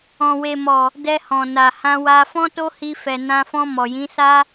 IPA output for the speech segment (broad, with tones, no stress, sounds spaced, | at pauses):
ɔ̃˨ w e˨ m ɔ˨ | d ɛ˧ h ɔ̃˨ n a˨ h ã˧ w a˧ f ɔ̃˦ t o˦ h i˧ f ɛ˨ n ã˧ f ɔ̃˧ m ɔ˨ j ĩ˨˦ s a˦